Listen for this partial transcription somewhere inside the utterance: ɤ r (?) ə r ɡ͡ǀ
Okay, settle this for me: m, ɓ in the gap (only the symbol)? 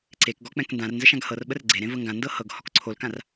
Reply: ɓ